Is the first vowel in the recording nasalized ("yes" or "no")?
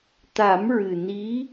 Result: no